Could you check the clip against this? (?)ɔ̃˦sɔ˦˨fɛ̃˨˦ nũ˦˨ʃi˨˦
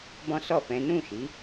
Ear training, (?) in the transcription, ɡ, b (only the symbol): b